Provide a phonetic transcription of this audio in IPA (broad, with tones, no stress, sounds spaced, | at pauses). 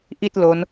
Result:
ʔ i˥˩ t̚ l o˦˥ n